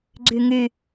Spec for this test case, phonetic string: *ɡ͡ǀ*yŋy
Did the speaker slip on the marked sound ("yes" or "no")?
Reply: no